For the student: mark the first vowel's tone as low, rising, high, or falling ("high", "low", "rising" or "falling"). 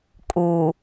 low